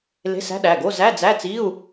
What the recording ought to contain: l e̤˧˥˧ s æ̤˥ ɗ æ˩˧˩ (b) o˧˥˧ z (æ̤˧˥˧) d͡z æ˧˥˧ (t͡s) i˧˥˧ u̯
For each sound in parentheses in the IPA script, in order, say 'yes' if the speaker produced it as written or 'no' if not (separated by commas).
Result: no, no, yes